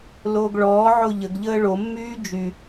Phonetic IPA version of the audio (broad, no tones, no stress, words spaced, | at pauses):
loːɡɭɔːʕo ʎəɡʎəː ɭomːyː d͡ʒy